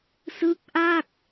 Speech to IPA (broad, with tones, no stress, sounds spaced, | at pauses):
s ɯ˦˥ k̚ ʔ a˥˩ k̚